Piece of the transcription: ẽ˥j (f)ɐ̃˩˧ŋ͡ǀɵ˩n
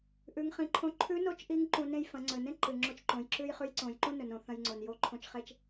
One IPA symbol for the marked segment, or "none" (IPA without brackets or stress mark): f